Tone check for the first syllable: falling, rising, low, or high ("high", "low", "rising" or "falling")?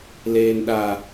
high